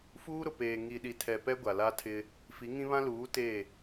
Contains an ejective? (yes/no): no